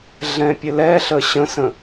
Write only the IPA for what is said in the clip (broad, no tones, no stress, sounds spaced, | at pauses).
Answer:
ɮ ɛ̃ pʲ ɘ l ɛ ɬ ə ɕ ə̃ s ə̃